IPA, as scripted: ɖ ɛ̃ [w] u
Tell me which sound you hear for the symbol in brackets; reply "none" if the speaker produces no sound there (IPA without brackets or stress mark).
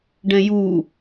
j